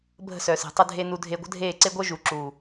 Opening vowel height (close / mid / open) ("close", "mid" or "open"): mid